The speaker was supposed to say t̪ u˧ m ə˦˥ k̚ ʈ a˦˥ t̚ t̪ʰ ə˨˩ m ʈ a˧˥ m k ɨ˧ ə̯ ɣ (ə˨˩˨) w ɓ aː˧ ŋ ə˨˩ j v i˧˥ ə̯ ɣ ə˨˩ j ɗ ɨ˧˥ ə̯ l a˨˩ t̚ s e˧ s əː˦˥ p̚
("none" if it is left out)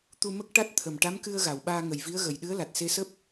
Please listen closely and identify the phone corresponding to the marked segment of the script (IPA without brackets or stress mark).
a˨˩˨